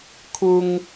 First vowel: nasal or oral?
oral